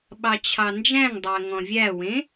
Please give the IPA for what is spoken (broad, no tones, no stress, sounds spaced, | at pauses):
ɓ ɑ t͡ɕʰ ɑ n d͡ʒ æ̃ ŋ dˤ ɑ ɐ̯ ŋ ɔ̃ vʲ æ w ẽ